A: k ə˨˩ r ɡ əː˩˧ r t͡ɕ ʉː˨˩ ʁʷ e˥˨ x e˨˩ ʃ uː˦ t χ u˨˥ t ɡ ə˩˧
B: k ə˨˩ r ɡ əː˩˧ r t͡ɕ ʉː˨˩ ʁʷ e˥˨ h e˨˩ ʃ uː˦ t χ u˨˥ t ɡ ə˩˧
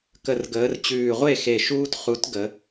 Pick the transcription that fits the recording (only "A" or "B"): A